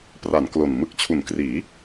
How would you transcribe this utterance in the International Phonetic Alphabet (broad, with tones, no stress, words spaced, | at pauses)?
pra˩˦n klo˨˩n mɯ˨˩k̚t͡ɕʰu˩˦nkriː˩˦